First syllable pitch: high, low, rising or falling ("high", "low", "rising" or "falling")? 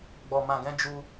low